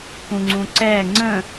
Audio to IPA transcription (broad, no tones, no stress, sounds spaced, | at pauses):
k ũ ŋ͡ǀ ũ ǀ ɛ ŋ͡ǀ ə̃